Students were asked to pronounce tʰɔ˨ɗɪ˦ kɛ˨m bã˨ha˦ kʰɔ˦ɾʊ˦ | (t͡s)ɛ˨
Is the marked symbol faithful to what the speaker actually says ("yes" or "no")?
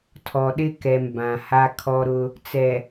yes